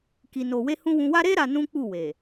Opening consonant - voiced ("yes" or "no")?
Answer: no